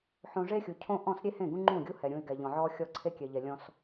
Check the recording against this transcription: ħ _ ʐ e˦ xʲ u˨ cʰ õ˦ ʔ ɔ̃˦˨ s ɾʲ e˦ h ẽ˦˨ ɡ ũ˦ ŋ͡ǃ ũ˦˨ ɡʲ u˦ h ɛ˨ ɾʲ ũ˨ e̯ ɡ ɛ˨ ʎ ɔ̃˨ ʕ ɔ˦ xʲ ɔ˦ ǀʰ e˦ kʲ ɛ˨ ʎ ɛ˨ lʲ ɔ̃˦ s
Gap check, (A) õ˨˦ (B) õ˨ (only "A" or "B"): B